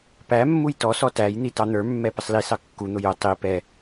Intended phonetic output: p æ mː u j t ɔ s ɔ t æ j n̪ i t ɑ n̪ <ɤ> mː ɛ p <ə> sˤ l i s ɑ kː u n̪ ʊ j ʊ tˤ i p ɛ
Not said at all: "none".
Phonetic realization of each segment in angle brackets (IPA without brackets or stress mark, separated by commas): ə˞, ə